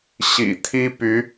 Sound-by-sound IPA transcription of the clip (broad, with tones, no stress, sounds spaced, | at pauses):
ɕ ḭ˨˩ t̪ʰ i˥ p y˧˥